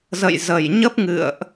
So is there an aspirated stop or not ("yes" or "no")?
no